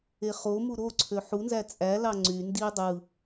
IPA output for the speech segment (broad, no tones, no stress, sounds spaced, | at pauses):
e χ o m u ɾ o ǀʰ ø ħ u n z æ t͡sʼ æ l ɑ ŋ͡ǀ y n d i dˤ ɯ